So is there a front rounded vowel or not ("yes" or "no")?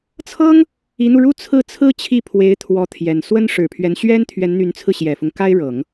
yes